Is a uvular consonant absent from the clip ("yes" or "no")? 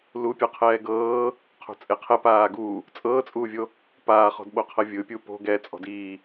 no